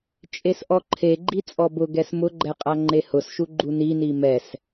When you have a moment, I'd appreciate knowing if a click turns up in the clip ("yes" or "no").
yes